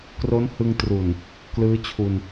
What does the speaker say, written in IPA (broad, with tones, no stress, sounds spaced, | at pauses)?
k r o˦˥ n h ɯ˧ ŋ t r u˨˩ n | k l ɯː˦˥ t͡ɕʰ u˧ n